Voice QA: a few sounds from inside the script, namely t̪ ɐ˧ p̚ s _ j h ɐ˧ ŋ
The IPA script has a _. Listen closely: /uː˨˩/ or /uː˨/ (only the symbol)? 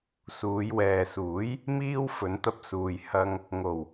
uː˨